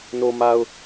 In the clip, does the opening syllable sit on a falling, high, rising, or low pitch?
low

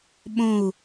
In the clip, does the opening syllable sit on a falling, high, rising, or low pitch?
falling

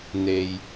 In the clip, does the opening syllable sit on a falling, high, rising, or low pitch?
low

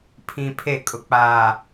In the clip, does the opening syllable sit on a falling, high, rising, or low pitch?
low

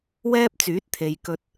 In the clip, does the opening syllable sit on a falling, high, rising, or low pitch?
high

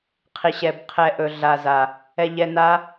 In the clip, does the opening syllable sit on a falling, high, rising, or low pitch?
low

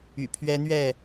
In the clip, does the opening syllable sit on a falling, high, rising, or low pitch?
low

